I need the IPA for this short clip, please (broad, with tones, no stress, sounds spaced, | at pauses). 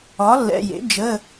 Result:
ɒ˩˥ lː ɛ̰˩˧˩ j ḛ˩˥ d͡ʒ ə˩˧˩